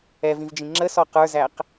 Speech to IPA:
ɛ v ĩ v d͡ʒ ĩ ŋ͡ǁ ə s ɔ q ə˞ z æ q

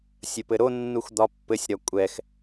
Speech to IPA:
sʲ ə p ɘ ɾ o nː u x d̪ ɒ pː ɘ sʲ ɾ ɒ kʷʼ ɛ x

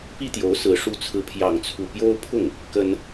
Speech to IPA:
p i˥ t̪ j o˧˥ ʊ̯ s ɹ̩˧˥ ʂ u˥ t͡sʰ ɹ̩˥˧ pʰ j ɑ˥˧ ŋ t͡sʰ u˥˩ p j o˥ ʊ̯ pʰ ʊ˥˩ ŋ | k ə˥ n

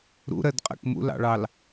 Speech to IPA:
ɾ ṵ ɾ ɜ d qʼ ɛ̰ k m ṵ l ɑ̰ ɭ ɑ l

